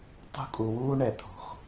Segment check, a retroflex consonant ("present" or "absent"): present